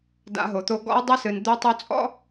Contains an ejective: yes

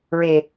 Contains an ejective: no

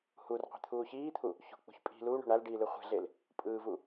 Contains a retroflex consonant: yes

